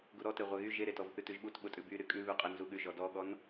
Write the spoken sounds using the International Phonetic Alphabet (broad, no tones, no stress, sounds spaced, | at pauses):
ɡ u ɾ ɔ t e ʁʷ ɛ ɣ y ʒ e ɾ e t ɔ v θ ʉ t ʉ ʒ ɓ u t ɓ ʊ tʼ ʉ b y ɾ y kʼ ʉ β ʉ qʼ e n z u ɠ ʉ ʒ ɔ d ɔ ɠ ɔ n